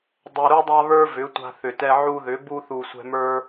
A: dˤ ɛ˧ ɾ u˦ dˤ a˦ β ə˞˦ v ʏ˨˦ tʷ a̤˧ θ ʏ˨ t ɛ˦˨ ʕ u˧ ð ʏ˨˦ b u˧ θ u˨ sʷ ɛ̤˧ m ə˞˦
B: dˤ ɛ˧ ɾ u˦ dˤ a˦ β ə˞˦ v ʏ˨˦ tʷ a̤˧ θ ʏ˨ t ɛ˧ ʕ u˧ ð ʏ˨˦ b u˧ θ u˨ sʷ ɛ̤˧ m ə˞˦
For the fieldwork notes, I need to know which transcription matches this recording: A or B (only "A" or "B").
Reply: B